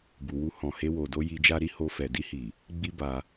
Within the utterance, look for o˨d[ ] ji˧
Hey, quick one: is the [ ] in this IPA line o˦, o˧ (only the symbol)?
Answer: o˧